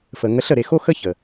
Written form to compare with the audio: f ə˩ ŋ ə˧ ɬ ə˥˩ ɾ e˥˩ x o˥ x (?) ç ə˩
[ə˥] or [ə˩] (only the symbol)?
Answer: ə˥